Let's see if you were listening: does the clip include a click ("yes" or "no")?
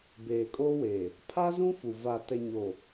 no